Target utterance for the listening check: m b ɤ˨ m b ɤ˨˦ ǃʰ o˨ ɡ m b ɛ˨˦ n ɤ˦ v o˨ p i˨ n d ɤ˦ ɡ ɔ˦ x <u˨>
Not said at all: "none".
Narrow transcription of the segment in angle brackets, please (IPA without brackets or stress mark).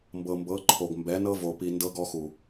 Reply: u˨